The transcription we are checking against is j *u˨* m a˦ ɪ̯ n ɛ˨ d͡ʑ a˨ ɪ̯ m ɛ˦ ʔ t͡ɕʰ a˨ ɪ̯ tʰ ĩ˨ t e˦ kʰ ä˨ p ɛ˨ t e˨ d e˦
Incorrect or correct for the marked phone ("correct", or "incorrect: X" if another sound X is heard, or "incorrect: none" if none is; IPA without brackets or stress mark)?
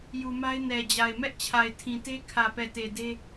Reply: correct